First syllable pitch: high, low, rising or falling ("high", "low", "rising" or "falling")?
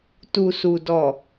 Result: low